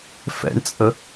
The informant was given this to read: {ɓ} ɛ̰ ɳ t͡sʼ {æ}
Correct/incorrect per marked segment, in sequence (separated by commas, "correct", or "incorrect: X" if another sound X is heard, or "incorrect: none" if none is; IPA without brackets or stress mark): incorrect: f, incorrect: ə